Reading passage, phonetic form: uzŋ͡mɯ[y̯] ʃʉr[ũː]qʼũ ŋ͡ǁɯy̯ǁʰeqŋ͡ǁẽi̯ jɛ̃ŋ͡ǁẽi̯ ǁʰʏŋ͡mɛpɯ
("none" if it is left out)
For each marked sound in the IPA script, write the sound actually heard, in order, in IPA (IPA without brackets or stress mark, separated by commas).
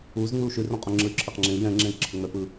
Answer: u̯, ũ